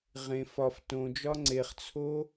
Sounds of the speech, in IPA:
ʁ ẽ f ɒ f t õ d͡ʒ ɒ ŋ͡ǀ e χ t͡sʰ o

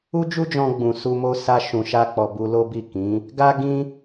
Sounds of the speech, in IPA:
u˦ d͡ʒ u˦ d͡ʒ ɔ̃˧ ɡ͡b ũ˨ s u˧ m o˦ s a˧ ʃ ũ˨ ʃ a˧ k͡p ɔ˨ b u˧ l o˦ b i˦˨ k ĩ˨˦ | ɡ a˦ ɡ ĩ˦

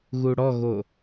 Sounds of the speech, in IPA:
ɣ u ɽ ɔ ɣ o

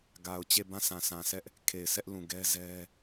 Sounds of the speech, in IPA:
ɡ a˨ ʊ̯ t͡ɕ e˦˨ b ã˦˨ sʰ ã˨ sʰ ã˨ s ɛ˦ ʔ | kʰ e˨ ɪ̯ s ɛ˦ ʔ l ũ˨ ɡ ɛ˦ z ɛ˦

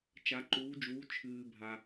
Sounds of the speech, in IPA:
t͡ʃ a˨˦ ǃ uː˨˦ d͡ʒ uː˨˦ t͡ʃʰ ɨː˨ bʱ a˨

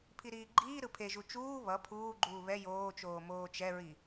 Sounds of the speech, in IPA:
pʰ i ɾ iː ɡ͡ǃ iː ɾ ɯ pʰ e ʒ u t͡ʃ uː β ʌ pʰ uː ɡ͡ǃ uː β ɛ j oː t͡ʃ oː m oː t͡ʃ ɛ ɹ i

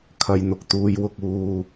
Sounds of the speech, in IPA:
kʰ ɐ˧ j n̪ ʊ˨ k̚ t̪ uː˧ j w ʊ˧ k̚ uː˧

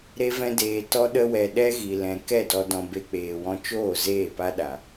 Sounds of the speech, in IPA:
ɾ e˦ v ɛ̃˦ d eː˧ t ɔ˦ ɗ ə˦ w ɛ˧ ɗ ɛ˦ ɣ i˨ l ɛ̃˨ k ɛ˦˨ d ɔ˧ d ɔ̃˧ b e˧ k͡p eː˨ w ɔ̃˧ t͡ʃ oː˦˨ z eː˦˨ p a˦ ɗ a˨

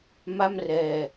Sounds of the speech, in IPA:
m a˥˩ m r ɛː˧

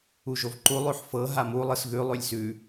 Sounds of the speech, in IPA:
u ʒ o v ǃ u lˠ ʉ ħ f ɤ ɦ a m u lˠ ɯ s ɣ ʉ lˠ ʉ lʲ s ʉ

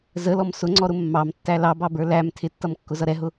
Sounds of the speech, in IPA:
z ə l ɔ m s ʊ ŋ͡ǀ ɔ ɾ ʊ mː ɑ m tː æ l ɑ b ɑ b ə˞ l æ m tʰ ɪ tː ʌ m kː ʊ z ʌ ɾ ɛ ɦ ʊ

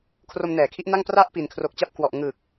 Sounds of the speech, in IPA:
kʰ r o˧ m n ɛː˩˦ kʰ i˦˥ ʔ n a˥˩ ŋ p r a˥˩ ʔ p i˨˩ n kʰ r o˨˩ k̚ t͡ɕ a˦˥ p̚ k w ɔ˨˩ ʔ ŋ ɯː˨˩ k̚

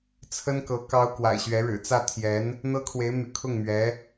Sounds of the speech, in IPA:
t͡sʰ ə˥ n k ɤ˧˥ k ɑ˥ ʊ̯ k w a̰˨˩ ɪ̯ ɕ ɥ ɛ˧˥ ɻ ɻ̩˨˩ t͡s ä˥˩ t̪ʰ j ɛ˧˥ n | n̪ ɤ˥ kʰ w e˧˥ ɪ̯ m y̰˨˩ kʰ ʊ˥˩ ŋ m ɥ ɛ˧˥

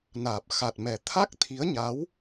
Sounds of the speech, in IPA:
n aː˨˩ p̚ x a˨˩ t̚ m ɛ˨˩ t̪ʰ a˦˥ k̚ t̪ʰ i˨˦ ə̯ ɲ a˨˦ w

